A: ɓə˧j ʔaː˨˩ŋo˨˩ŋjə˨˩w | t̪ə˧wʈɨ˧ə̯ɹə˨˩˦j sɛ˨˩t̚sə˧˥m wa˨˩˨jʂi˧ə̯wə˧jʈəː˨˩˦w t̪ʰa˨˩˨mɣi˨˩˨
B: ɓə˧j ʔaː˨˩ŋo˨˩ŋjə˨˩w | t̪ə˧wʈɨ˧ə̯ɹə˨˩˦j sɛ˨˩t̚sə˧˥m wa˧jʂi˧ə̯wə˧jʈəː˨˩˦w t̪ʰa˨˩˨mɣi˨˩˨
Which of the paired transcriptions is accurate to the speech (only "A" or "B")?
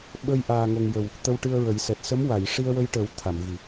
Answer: A